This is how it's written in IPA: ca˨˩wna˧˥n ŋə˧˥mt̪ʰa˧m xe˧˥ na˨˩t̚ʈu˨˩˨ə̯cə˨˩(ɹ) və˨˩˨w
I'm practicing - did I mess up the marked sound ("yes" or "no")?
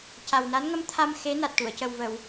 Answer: yes